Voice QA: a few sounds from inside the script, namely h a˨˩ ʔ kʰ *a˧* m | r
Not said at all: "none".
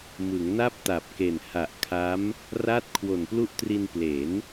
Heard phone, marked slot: a˦˥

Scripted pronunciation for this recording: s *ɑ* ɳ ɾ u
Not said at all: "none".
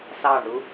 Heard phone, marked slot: ɑ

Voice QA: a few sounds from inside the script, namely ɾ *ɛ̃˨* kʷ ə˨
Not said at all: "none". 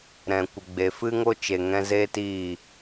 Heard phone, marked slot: ɛ̃˨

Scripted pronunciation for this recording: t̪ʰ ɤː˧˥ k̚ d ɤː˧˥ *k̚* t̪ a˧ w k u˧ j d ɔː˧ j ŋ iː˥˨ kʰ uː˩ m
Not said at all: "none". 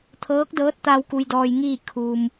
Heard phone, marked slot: t̚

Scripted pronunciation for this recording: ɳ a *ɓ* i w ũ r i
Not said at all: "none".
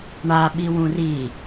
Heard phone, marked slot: ɓ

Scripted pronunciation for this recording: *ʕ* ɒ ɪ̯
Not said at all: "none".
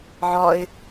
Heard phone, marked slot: ʕ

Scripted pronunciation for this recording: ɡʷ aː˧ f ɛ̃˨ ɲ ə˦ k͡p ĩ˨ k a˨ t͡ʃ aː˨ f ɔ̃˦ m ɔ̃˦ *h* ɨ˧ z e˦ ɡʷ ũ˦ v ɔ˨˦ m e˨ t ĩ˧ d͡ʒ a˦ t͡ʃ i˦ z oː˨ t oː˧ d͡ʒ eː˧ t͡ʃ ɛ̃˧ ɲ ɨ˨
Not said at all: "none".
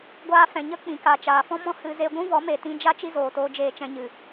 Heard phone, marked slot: h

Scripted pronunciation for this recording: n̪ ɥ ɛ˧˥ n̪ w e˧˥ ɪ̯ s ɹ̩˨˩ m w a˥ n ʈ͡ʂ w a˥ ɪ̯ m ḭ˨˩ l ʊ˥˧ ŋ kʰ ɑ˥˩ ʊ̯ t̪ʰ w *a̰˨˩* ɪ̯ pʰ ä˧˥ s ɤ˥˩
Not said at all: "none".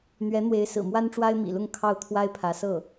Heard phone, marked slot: a˥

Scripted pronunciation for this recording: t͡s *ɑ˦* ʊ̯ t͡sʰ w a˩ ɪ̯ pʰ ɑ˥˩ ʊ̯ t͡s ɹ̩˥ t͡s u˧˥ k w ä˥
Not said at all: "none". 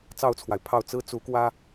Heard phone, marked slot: ɑ˥˩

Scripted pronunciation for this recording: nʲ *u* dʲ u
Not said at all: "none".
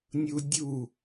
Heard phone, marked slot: u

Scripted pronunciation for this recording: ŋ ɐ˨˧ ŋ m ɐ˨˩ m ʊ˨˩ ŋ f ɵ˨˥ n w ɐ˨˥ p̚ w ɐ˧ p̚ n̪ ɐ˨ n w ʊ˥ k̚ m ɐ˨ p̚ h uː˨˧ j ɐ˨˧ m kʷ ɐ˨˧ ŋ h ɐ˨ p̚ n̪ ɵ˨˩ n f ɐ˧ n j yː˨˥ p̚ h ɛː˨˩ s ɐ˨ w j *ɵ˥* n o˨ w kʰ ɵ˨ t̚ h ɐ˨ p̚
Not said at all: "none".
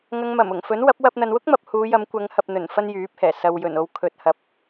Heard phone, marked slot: ɵ˨˩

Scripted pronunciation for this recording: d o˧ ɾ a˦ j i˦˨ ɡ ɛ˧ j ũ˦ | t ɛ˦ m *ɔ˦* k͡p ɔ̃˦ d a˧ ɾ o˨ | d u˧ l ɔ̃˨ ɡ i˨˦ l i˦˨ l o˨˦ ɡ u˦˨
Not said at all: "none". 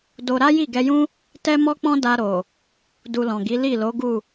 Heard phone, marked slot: ɔ˦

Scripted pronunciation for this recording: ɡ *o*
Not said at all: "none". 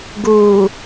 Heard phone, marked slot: u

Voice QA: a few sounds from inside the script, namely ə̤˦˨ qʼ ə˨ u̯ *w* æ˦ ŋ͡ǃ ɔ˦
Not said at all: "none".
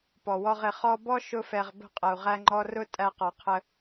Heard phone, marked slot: ʁ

